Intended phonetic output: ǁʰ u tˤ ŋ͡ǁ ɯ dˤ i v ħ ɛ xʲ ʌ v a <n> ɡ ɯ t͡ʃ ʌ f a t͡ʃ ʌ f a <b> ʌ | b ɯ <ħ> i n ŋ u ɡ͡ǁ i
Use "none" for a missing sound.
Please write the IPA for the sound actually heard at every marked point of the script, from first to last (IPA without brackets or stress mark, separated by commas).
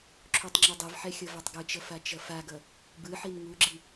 tˤ, ɡ, ħ